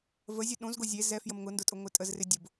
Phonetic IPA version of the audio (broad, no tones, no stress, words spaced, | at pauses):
vəzʲɛ ɗõzɡo zʲe zɛ fjəmŋʊndʊtʼʊ ŋʷɪtʼəzrɪ dʲʊb